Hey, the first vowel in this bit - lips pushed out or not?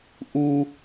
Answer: yes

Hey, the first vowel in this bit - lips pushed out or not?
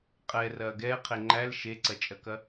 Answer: no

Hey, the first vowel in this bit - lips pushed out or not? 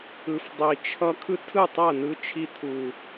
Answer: no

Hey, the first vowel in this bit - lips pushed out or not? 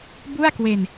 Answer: yes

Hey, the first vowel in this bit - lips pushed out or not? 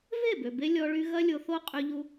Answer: no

